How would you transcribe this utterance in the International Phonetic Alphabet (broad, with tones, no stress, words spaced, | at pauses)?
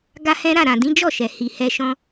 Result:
ɡa˦hɛ̃˦ ɾa˦˨ɾã˨dĩ˨˦ d͡ʒɔ˦˨ʃɛ˨ hi˨hɛ˧ʃɔ̃˧